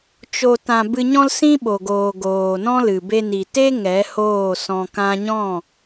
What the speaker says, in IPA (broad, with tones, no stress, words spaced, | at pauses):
t͡ʃo˨tã˨ bɨ˧ɲɔ̃˦lsĩ˦ ɓo˨ɡoː˨ɡoː˨nɔ̃˦ lɨ˨be˧ni˨ te˦ ŋɛ˨˦hoː˦˨ sɔ̃˧kã˦ ɲɔ̃˦˨